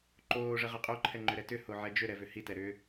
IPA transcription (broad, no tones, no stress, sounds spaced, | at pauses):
ǃ oː ʐ ə ʁ ə qʼ o ǃʰ ɛ ŋ͡ǃ ʏ ɾ ɛ t ʏ h o ʕ ɛ d͡ʒ ʏ ɾ ɛ v ʏ h i t ɛ ɾ ʏ